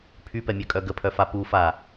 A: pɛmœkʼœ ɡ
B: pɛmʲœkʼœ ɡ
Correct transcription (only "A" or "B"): B